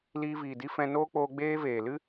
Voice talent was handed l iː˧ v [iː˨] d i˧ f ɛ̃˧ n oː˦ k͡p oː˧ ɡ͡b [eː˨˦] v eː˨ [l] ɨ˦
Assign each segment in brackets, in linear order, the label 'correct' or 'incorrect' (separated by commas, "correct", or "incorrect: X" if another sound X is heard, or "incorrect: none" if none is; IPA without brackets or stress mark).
correct, incorrect: eː˦, correct